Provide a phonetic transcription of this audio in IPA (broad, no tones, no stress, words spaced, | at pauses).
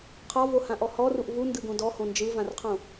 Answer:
qʰɒvohãʔɔ hɔruʔ vundɯɡõ dɔhõ nd͡ʒɯvãrqʰõ